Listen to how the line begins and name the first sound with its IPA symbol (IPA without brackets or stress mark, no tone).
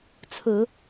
t͡sʰ